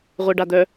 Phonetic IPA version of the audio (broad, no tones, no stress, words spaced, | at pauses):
ʁʷeɖad̪œ